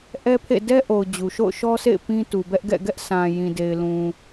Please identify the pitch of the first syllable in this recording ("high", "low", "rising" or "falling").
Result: high